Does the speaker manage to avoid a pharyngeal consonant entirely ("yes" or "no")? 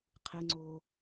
yes